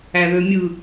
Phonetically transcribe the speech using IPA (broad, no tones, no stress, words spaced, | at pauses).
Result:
æðømʲɯ